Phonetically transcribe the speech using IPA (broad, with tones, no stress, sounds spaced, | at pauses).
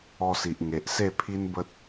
ɔ˧ s i˨ ʔ ŋ e˨ ʔ s e˥˧ pʰ i˦ n b ə˦ t̚